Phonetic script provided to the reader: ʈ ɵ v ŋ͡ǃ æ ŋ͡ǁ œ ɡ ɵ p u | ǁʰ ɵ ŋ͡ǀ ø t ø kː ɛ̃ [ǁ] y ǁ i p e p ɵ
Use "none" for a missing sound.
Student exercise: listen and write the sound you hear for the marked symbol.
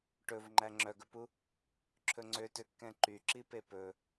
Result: ǃ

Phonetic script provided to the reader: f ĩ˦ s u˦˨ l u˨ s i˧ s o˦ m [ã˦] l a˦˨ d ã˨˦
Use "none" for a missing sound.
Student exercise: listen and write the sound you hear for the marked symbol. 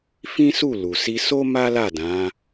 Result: a˦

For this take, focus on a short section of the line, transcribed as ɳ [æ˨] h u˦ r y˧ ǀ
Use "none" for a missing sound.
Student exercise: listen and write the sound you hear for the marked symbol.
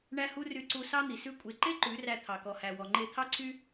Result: æ˦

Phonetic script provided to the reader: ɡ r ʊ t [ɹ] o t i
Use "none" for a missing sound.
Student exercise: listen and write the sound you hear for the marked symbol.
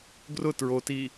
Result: ɹ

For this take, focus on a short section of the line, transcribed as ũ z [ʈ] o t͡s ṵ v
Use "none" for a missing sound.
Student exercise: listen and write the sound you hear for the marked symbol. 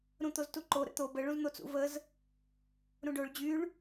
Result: n̪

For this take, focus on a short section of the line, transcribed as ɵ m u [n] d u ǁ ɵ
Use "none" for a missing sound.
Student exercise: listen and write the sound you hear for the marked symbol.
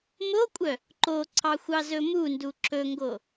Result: n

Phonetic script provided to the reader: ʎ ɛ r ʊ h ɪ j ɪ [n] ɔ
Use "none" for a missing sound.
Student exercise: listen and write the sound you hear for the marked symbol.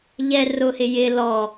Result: l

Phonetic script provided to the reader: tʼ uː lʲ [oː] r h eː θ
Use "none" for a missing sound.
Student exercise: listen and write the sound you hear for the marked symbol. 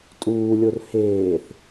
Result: o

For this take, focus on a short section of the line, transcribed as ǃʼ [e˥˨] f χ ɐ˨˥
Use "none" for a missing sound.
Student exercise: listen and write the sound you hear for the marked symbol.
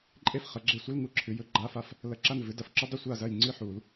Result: e˥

